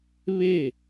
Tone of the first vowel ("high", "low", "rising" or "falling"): falling